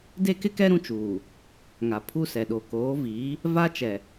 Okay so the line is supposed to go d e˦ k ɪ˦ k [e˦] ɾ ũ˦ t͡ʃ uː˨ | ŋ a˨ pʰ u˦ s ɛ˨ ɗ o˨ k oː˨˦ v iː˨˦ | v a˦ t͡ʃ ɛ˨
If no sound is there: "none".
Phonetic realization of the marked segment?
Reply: ɛ˦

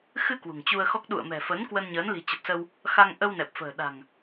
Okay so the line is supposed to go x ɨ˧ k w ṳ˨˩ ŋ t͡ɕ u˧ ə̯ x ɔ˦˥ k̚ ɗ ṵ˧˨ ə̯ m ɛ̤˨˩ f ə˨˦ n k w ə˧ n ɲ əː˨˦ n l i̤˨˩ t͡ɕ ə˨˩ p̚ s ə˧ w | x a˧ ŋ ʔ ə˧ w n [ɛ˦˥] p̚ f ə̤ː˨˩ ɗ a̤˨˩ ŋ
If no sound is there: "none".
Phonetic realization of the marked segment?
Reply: ɛ˨˩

